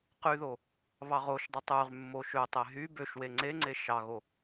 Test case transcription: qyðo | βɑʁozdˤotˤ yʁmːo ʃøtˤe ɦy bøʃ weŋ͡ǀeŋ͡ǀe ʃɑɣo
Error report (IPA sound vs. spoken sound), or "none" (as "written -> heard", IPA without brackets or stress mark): z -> ʃ